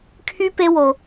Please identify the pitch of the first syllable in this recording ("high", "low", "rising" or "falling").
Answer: high